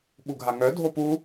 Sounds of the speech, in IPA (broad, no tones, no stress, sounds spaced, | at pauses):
ɓ u ɡʱ a ŋ œ dʱ o p u